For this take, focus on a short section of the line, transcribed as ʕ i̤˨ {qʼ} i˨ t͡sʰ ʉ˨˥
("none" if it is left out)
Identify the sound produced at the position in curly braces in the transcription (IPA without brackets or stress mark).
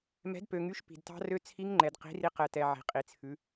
qʼ